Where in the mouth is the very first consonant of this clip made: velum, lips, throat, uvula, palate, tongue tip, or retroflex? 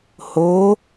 throat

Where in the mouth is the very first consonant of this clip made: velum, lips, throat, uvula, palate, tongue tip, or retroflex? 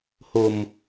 throat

